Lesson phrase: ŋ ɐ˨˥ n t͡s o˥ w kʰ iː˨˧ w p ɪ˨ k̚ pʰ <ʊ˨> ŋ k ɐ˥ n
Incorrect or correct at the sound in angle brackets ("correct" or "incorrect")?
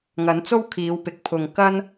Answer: correct